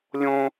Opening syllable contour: high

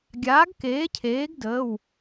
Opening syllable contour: rising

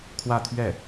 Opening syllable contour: falling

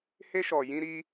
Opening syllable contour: high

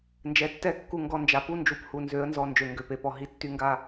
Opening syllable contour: low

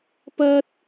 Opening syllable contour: high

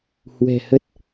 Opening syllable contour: low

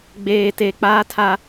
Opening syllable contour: low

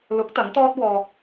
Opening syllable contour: rising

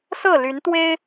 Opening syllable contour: falling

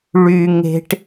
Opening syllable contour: high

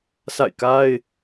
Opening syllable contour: falling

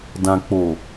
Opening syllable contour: low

